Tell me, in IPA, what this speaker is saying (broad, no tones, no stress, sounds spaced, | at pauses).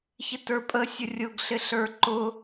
ç ɪ t ə˞ pʼ ə sʲ ʊ rʲ ʊ ɡ ɬ ɪ ɬ ə˞ ǃ ʊ